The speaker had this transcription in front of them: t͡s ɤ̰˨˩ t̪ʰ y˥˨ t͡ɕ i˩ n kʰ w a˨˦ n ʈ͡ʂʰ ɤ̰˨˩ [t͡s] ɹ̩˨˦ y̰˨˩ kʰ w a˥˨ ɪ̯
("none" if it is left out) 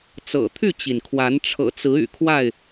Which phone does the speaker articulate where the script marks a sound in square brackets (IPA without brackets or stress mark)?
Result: t͡s